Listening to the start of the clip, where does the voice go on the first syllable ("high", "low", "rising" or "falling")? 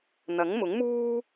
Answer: rising